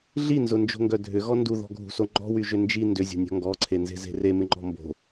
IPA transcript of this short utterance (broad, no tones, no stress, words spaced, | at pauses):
ɮinzʊnd͡ʒo̤ŋɡœ dʱʏɣɔ nduðɔ̤ɡʱṳso ŋ͡ǃɔ̤wyʒʏ nd͡ʒi ndʏzʲo̤nʲɔ̤ ŋɡɔǀʰenze̤ze̤ remɪŋ͡ǃɔ̤ mbo̤